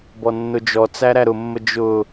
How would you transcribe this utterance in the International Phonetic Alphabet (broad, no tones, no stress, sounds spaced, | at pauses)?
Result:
b ɔ nː ʊ d͡ʒ ɔ t͡s æ ɾ æ ɾ ʊ mː ə d͡ʒ ʊ